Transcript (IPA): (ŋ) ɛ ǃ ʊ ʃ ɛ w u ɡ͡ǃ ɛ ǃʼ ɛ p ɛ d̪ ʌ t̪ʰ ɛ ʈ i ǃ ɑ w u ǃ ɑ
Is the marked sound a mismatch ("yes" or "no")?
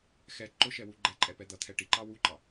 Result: yes